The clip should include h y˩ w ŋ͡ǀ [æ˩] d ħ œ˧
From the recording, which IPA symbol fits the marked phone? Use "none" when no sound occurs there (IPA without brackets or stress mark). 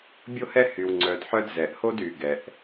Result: œ˩